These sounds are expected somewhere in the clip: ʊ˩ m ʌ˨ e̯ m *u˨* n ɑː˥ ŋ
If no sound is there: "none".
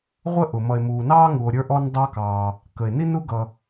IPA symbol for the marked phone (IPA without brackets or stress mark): uː˨